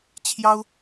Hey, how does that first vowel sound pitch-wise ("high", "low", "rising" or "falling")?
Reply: high